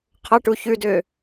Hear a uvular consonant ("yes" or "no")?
yes